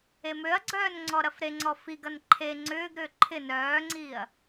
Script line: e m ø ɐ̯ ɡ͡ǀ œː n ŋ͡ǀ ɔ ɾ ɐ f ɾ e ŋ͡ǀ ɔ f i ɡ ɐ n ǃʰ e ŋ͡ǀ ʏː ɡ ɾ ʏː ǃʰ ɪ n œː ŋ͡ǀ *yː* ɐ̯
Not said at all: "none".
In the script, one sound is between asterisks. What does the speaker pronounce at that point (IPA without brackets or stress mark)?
iː